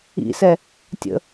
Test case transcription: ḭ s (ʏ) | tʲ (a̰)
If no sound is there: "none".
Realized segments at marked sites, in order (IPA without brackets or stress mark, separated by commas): ɛ, ə̰